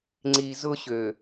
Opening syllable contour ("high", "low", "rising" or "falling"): low